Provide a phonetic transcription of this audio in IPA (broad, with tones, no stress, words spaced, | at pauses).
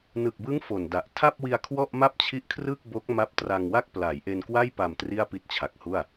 nɯ˨˩k̚bɯ˦˥ŋ fo˨˩nda˨˩ʔ tʰa˥˩p̚wi˧a̯ kʰwɔ˥˩ʔma˥˩p̚t͡ɕʰi˦˥ʔkʰrɯ˥˩k̚ bo˦˥k̚ma˦˥p̚tra˧ŋ wa˥˩k̚pla˩˦jʔe˧nkwa˥˩j pa˨˩m tri˥˩a̯pi˦˥t̚t͡ɕʰa˨˩k̚hu˥˩a̯